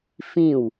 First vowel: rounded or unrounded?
unrounded